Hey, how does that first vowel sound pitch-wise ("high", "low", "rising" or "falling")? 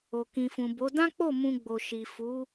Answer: low